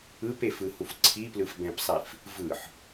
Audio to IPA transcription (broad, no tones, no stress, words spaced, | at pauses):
ɯpefɯhuf ǀʰiplɯfbɛ̃psˤif | vɯħ